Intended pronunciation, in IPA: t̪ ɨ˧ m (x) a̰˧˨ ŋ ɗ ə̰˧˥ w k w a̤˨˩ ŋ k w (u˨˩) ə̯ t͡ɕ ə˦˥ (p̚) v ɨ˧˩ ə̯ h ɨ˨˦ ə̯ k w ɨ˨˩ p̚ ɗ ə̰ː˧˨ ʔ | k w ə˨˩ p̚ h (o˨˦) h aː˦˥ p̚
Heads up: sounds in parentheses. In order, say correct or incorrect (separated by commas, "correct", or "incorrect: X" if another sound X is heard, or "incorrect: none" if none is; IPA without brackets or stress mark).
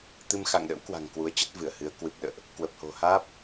correct, incorrect: u˨˦, incorrect: t̚, incorrect: o̤˨˩